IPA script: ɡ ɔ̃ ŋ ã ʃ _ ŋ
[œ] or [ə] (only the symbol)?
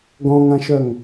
œ